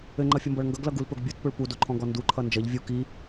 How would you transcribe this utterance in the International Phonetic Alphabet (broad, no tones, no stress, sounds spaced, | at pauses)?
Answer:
ɘ ŋ͡ǃ ʌ fʲ ʌ m b ʌ ɭ ŋ ɡ ʌ ɡ l ʌ ɡ u l p ɵ ɡ bʲ o t p ɵ ɭ p u d o ǃʰ ɔ̃ ɡ ɔ n d u ǃʰ ʌ n d͡ʒ ʌ ʎ vʲ u k i